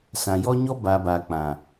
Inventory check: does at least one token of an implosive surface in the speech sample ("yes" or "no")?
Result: no